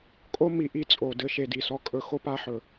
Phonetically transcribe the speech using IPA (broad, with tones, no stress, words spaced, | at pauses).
kʼo˦mi˨ ʔi˦t͡sʼo˨ dɘ˧ ʃe˨di˨sɔ˧ kʼɵ˧ xo˦pa˧ħɵ˨